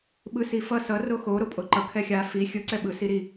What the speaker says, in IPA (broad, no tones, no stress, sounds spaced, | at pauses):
ɓ ɯ s i f ʌ s ʌ r o x o ɾ o pʼ o ǃ ʌ kʰ ɛ xʲ a f i xʲ ɯ ǀ ɛ ɓ ɯ s i ɾ i